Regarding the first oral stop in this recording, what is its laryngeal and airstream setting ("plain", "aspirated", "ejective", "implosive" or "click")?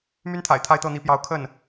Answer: aspirated